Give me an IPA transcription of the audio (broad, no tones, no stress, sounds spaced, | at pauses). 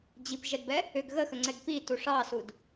d͡ʑ i p ʒ ɛ d b ɛ | ʏ ɡ ɣ ə x ə ŋ͡ǀ ɛ ɡ p i t u ʂ ɑ s u d